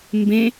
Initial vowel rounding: unrounded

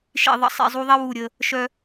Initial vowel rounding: unrounded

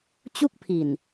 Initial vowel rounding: rounded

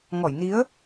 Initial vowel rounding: rounded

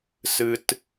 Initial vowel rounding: unrounded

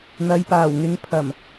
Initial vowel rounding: unrounded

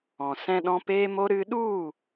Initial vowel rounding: rounded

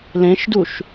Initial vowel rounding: unrounded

